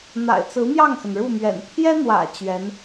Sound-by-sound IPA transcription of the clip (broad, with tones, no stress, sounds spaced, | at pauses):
n̪ a̰˨˩ ɪ̯ t͡s ɹ̩˧˥ m j ɑ˥˩ ŋ x ə˩ n ɻ u˥˩ m ɥ ɛ̰˨˩ n t̪ʰ j ɛ˥ n̪ w ä̰˨˩ t͡ɕ ɥ ɛ˧˥ n